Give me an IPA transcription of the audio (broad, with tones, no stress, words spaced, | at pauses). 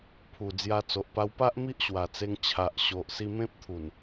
pʰu˨˩d͡zja˧t͡so˨ʔ pa˧w pa˦ʔ mi˦ʔɕwa˨˩t͡se˧ŋ t͡ɕʰa˨ʔɕo˨ʔ si˧ mẽ˦p̚t̪ʰu˨˩n